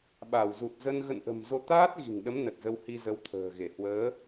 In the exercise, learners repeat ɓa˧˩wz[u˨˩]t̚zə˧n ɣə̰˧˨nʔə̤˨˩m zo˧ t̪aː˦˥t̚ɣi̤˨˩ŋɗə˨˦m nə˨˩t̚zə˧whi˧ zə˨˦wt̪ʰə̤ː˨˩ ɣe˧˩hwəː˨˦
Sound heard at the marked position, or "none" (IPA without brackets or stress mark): u˨˩